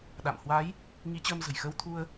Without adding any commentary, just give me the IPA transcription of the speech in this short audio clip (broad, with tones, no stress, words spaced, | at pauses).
ɗa̰˧˨m hwa˨˦j | ŋi˨˦t͡ɕəː˧m zə̤˨˩jxəː˧wt̪ʰu˧ə̯